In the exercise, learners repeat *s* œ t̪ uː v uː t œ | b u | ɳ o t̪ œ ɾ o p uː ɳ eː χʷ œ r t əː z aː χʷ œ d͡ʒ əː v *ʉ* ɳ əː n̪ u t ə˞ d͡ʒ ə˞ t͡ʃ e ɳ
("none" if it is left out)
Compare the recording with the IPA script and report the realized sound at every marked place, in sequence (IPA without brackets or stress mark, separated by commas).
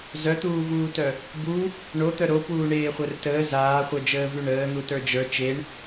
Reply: z, ʉ